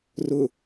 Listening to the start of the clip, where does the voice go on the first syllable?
low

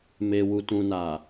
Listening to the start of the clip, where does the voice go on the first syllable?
low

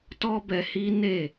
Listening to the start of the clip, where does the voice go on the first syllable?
high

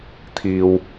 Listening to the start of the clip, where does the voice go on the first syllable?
low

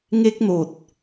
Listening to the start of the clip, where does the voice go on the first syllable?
high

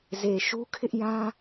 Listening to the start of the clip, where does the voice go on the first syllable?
low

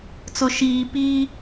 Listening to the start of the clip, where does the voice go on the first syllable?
low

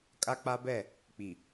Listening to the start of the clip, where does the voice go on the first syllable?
high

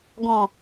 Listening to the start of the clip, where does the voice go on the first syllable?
low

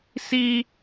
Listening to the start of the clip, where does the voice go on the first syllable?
high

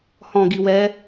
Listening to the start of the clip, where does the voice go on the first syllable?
low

